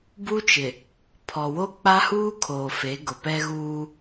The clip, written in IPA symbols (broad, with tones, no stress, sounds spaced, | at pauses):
b u˦ t͡ʃ ɪ˨ | pʰ ɔ˨ w o˦ k͡p a˦ h uː˦ kʰ oː˨ f e˨˦ ɡ ʊ˨ p ɛ˦ ɣ uː˦